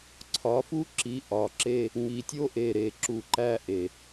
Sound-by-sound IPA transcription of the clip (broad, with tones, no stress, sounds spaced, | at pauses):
ǀʰ ɒ˨˦ f u˦ ǁ i˨˦ ʔ ɒ˨ ǁ e˦ | ŋ i˨ tʲ o˦ ʔ e˨ ɾ e˨ ǁ u˨ ǃ æ˦ ʔ e˨